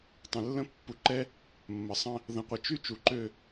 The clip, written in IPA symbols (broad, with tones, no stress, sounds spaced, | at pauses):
tˤ ə̃˨ lː ə̃˦ pː u˨ ǃ ɛ˦ | mː ə˨ sˤ ə̃˦ | ð ə̃˨ qʷ ə˨ t͡ʃ y˦ t͡ʃ u˨ ǃ ø˦˨